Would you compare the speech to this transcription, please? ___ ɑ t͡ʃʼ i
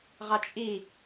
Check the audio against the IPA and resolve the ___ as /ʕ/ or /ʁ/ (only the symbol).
ʁ